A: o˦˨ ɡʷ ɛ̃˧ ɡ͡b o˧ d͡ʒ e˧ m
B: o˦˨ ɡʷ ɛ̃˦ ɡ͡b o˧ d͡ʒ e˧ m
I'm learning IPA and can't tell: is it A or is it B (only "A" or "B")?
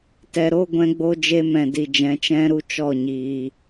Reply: A